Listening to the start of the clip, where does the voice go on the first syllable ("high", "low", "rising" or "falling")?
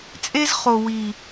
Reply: high